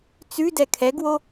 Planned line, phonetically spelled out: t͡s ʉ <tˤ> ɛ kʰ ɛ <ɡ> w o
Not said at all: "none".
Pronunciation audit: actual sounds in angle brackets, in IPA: d, ɡ

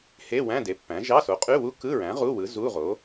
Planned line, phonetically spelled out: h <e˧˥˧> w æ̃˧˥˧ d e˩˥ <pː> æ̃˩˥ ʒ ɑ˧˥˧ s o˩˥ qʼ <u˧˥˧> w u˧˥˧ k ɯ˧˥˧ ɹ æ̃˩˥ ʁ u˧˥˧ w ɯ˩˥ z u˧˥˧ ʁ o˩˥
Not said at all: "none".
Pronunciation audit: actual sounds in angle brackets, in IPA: e˧˥˧, pː, y˧˥˧

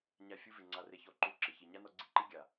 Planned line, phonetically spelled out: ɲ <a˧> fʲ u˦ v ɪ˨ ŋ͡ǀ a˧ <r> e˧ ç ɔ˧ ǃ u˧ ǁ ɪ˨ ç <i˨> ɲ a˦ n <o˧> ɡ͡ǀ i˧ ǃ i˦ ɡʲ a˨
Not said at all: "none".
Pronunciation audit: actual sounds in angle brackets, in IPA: a˧, r, i˨, ɔ˧

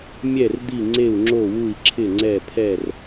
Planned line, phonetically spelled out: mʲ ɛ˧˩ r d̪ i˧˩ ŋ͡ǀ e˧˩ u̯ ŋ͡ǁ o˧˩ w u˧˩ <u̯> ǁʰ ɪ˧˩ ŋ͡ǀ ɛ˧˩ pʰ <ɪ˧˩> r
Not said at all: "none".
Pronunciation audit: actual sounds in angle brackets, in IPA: i̯, ɛ˧˩

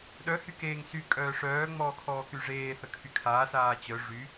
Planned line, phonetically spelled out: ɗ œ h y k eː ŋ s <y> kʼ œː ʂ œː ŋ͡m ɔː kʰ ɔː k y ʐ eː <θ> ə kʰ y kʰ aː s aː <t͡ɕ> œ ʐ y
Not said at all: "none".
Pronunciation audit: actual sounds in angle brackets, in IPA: y, θ, t͡ɕ

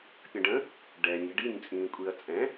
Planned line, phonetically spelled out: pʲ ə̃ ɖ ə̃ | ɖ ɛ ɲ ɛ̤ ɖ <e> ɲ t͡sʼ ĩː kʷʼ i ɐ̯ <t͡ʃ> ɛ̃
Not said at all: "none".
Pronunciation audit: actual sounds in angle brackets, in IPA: i, t͡sʼ

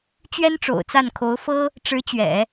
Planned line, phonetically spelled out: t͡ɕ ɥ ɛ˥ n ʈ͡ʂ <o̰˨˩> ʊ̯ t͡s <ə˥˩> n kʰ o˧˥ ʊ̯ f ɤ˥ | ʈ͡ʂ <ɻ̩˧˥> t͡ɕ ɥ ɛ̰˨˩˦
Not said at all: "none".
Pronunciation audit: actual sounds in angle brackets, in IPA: o̰˨˩, a˥˩, ɻ̩˧˥

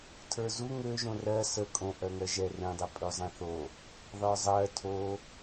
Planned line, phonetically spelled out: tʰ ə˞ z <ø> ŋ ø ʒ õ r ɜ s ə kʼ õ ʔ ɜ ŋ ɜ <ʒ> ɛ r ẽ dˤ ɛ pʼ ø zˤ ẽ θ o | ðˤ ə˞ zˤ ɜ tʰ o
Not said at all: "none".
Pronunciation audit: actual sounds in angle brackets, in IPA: u, ʒ

